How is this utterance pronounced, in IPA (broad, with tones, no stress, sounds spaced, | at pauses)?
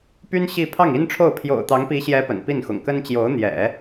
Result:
p y˥ n ɕ i˥˧ pʰ ɑ˥˩ ŋ i˥ n ʈ͡ʂʰ o˥˩ ʊ̯ pʰ j o̰˨˩ ʊ̯ t̪ ɑ˧˥ ŋ p i˧˥ ɕ j ɛ˧˥ p ə̰˨˩ n p i˥˩ n x ʊ̰˨˩ ŋ k ə˥ n t͡ɕ j o˧˥ ʊ̯ n̪ j ɛ̰˨˩˦